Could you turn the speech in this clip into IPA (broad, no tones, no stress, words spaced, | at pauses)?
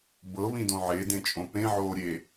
bɤβĩdõ ʕedẽt͡ʃʼõ pẽʕoːɾʲe